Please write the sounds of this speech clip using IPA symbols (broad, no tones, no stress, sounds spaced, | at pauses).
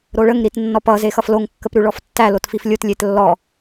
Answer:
ɾ o ɭ ə ŋ ɾ i t nː ɔ p ʌ z e x ʌ f l o ŋ kː ə p ɾ ʉ ɭ ɔ f tː æ l o t f i f lʲ o t lʲ e t lː ɔ